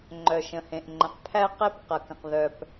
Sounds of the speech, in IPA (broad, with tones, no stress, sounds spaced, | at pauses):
ŋ͡ǃ œ˩ ʃ ə̃˩ h ẽ˩ ʔ ŋ͡ǃ ə̃˩ q pʰ æ˦ q e˦ p q ɐ˩ k ə̃˩ q ð œ˩ p